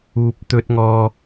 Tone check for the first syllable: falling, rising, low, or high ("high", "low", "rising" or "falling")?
low